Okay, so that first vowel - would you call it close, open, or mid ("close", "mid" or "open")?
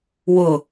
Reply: close